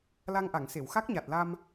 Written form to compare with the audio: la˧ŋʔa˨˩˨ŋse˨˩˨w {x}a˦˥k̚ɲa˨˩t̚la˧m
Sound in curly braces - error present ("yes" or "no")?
no